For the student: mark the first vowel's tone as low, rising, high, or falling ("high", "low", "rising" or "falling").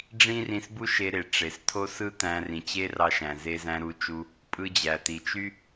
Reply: high